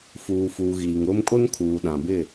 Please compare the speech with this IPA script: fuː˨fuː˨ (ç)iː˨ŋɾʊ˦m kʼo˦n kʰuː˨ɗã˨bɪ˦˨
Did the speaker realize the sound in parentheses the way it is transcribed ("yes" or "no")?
no